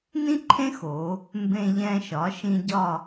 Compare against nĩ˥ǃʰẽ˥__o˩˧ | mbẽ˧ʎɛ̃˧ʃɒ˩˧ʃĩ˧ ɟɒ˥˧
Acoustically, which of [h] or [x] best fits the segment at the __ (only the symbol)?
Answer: x